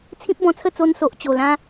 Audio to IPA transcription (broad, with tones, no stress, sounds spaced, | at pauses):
t͡sʰ ĩ˦ p̚ b ɔ̃˧ t͡sʰ ə˥˧ t͡s o˧ n s o˨ ʔ t͡ɕ o˨˩ l ã˦